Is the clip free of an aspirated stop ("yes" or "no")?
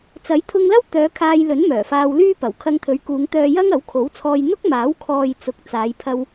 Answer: no